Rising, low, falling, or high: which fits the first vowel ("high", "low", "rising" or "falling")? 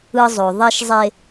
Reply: high